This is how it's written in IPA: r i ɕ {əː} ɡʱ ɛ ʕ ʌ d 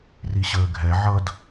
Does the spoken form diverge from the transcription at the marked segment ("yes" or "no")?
no